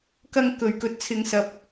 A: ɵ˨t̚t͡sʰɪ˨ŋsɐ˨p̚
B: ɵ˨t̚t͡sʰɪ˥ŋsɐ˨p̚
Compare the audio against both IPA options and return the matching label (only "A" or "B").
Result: A